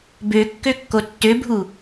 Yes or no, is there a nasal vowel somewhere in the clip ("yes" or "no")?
no